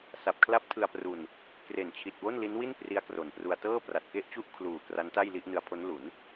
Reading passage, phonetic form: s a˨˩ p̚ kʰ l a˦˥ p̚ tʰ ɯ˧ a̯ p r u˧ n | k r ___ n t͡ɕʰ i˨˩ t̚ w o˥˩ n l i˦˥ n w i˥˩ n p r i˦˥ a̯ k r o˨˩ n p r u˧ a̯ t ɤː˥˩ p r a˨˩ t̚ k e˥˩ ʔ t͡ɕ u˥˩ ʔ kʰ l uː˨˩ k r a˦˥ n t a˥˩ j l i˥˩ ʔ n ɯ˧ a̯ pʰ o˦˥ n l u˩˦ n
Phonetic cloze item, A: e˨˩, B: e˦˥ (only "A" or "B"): A